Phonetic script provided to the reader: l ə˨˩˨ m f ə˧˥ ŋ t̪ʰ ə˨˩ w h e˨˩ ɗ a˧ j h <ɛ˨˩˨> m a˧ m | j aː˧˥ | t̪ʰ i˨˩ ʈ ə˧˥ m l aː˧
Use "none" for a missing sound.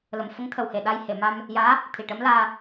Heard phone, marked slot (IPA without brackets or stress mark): e˨˩˨